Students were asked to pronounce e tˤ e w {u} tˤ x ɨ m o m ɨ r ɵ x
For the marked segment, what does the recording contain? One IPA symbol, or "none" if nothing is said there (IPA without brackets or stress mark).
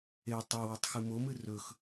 u